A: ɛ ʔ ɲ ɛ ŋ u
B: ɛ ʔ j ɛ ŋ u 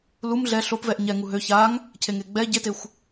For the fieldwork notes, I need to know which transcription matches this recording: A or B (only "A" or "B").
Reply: A